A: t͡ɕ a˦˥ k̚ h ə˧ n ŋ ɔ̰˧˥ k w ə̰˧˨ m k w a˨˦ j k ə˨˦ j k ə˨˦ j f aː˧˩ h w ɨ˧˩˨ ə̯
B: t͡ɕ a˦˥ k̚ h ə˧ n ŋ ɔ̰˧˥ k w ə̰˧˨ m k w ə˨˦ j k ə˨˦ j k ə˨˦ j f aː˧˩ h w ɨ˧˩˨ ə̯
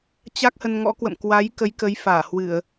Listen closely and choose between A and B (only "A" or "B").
A